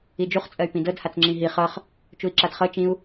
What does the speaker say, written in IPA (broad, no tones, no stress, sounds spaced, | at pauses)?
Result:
i d͡ʒ u χ t͡sʼ ɜ y̯ p ĩ d ɤ d h a t͡s ŋ͡ǁ ĩ ɦ i χ ɤ χ | t͡ʃ u i̯ ǁ a d χ ɤ t͡ʃ ĩ u̯